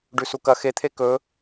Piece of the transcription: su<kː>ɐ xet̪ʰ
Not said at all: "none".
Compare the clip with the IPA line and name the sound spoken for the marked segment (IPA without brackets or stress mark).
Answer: k